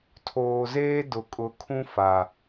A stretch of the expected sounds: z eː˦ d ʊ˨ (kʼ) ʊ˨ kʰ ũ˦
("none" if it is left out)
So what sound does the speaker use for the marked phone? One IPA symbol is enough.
kʼ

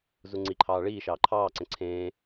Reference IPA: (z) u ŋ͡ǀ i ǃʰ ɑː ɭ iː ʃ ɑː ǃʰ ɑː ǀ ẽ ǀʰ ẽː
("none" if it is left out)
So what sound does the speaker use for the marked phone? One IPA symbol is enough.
z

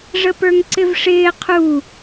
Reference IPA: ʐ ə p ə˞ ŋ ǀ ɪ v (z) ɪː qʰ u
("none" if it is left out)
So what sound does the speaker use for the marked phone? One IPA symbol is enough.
ʂ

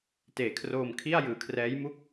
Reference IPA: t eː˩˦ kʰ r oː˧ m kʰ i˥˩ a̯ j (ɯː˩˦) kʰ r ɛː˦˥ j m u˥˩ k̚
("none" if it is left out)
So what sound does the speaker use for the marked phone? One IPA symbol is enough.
ɯː˩˦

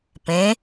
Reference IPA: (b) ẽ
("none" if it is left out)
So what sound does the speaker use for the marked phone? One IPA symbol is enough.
p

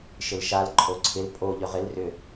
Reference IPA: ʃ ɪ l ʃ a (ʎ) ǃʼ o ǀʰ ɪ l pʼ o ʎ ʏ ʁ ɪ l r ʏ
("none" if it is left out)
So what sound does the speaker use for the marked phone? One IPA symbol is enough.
l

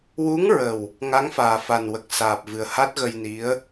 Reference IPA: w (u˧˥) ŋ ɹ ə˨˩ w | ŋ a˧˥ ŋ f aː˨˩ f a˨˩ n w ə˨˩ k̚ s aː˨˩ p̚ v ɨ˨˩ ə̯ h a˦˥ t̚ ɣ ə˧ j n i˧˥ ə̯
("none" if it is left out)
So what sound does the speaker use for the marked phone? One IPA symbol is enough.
u˧˥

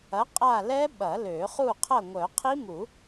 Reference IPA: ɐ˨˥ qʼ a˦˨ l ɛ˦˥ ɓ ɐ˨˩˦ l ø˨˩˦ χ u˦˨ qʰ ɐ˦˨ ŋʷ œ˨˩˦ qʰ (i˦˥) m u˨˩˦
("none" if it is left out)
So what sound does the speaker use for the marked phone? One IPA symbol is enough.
i˦˥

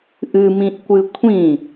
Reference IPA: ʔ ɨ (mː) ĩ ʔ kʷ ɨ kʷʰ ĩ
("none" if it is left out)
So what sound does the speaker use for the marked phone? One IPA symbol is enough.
m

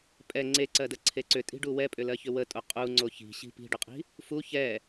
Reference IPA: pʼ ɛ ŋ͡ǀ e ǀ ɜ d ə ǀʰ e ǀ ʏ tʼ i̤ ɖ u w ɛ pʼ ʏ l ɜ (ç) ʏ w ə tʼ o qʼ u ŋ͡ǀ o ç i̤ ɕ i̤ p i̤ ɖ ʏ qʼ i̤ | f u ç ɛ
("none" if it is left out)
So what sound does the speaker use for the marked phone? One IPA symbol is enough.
ç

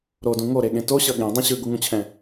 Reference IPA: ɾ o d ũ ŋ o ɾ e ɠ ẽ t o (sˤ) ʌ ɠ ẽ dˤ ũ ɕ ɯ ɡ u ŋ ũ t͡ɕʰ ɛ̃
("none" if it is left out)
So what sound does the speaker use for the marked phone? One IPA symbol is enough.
ɕ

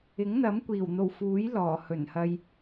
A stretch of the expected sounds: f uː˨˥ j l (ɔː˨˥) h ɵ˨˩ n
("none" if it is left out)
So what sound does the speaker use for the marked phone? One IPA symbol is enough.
ɔː˨˩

